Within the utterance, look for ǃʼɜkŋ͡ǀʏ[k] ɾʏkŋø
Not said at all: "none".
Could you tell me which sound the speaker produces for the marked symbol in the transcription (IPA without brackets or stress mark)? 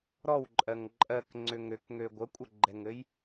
ŋ